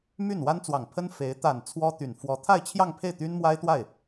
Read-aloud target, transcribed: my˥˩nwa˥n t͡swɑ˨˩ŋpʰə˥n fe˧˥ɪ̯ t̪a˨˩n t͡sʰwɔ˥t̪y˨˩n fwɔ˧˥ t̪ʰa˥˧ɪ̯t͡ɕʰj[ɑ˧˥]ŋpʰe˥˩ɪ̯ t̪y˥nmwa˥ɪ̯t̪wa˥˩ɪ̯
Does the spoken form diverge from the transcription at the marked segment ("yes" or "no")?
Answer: yes